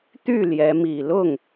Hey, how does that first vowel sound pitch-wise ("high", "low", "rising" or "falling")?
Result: falling